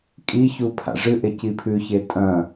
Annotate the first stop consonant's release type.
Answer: ejective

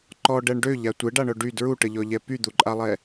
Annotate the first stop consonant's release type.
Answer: click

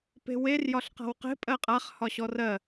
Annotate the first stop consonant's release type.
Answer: plain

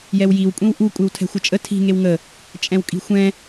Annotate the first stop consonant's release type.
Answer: ejective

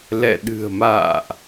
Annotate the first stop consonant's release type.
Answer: implosive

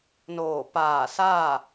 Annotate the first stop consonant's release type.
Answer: plain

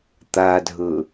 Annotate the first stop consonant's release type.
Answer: plain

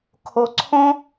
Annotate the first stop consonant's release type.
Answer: aspirated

